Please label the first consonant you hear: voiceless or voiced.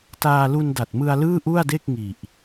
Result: voiceless